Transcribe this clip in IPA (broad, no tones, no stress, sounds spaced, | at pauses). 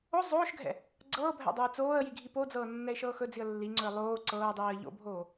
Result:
o zˤ oː ʃ ɡʱ ɛ̰ | ɡ͡ǀ ɤː bʱ ɛ̰ dˤ o ɪ̯ t͡s oː ə̯ j i ɡʱ i p o d͡z ɤː nː ɛ ɪ̯ ʃ ɤː x ɵ d͡z i ə̯ lː i ŋ͡ǀ ɵ ɪ̯ lˠ oː ǀ ɤː dˤ iː ə̯ ʎ o̰ bʱ oː